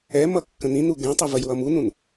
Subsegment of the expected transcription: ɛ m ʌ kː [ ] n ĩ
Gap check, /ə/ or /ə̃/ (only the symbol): ə̃